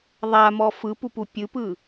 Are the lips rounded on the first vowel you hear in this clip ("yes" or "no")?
no